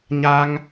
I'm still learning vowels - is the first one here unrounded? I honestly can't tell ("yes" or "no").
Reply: yes